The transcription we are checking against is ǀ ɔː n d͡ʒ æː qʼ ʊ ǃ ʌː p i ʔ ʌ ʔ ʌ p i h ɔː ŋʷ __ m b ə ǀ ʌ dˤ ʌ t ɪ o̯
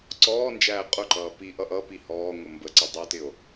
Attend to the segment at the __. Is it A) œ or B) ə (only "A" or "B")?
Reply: B